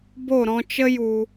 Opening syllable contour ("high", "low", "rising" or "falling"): falling